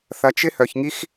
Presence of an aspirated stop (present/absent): absent